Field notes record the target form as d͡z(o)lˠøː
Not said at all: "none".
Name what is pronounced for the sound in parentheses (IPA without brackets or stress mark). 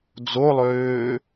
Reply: o